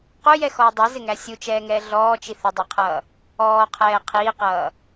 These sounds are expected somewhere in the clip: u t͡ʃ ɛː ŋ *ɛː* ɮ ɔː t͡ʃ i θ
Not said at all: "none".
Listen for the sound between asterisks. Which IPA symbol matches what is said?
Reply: ɛː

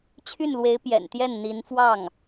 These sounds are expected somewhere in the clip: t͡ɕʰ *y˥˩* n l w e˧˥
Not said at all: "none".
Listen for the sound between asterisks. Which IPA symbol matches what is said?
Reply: y˥˩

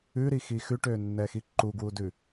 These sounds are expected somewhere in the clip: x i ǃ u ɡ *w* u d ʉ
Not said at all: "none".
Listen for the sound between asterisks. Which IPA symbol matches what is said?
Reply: w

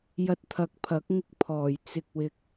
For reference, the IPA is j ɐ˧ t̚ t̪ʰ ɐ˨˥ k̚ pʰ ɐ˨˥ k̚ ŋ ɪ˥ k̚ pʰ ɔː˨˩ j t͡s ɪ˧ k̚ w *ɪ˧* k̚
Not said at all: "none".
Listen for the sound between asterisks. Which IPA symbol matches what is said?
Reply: ɪ˧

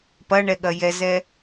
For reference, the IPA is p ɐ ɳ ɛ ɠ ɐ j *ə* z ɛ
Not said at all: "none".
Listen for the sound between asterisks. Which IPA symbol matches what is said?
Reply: ɛ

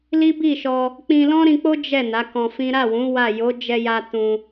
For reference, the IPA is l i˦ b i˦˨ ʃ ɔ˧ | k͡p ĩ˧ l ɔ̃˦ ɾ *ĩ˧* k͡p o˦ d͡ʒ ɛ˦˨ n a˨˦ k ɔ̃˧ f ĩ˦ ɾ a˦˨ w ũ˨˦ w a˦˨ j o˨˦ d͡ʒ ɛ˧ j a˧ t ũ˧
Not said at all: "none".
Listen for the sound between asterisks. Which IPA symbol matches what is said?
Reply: ĩ˧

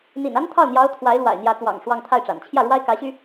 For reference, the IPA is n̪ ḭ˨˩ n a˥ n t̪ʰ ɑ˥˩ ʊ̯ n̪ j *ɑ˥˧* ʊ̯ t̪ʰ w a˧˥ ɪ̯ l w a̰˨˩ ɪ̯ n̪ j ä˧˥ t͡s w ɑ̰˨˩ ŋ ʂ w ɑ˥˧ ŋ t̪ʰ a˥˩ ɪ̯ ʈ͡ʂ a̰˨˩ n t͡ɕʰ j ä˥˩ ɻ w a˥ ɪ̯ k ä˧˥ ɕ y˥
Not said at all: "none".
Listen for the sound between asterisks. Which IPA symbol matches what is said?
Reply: ɑ˧˥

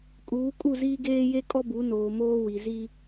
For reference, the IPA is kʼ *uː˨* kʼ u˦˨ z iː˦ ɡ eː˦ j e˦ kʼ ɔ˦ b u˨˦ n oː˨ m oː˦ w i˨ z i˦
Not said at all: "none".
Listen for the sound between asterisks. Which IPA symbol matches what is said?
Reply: uː˨˦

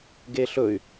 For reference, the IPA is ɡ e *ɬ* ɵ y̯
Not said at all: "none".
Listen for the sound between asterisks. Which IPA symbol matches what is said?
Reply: ɬ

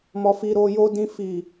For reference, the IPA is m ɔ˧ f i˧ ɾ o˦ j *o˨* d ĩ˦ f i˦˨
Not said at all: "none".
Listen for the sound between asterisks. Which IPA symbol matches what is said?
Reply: o˦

